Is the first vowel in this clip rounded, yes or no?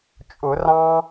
yes